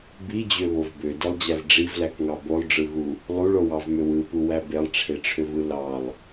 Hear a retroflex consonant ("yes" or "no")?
yes